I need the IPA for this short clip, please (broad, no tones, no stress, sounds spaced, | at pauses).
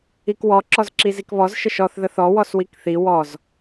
i k w ɔ ǁ ɔ z ǁ i z i k β ɔ z ʃ ə ʃ ɔ θ ð ə θ ɔ w ɔ s w i k θ i w ɔ z